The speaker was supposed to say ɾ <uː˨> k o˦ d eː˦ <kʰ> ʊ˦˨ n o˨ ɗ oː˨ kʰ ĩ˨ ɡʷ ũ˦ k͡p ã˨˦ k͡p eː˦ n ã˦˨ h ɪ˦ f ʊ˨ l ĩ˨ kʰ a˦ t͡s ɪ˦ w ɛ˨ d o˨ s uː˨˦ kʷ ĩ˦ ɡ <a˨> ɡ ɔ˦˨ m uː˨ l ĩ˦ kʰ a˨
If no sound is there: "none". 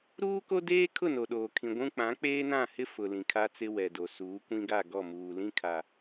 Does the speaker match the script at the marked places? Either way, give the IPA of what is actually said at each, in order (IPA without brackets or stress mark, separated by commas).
uː˦, kʰ, a˦˨